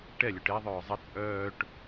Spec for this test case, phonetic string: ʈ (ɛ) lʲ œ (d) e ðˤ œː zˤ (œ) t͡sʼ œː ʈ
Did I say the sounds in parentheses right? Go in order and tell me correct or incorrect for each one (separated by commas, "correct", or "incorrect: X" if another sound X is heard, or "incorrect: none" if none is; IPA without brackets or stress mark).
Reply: correct, incorrect: ʈ, incorrect: ə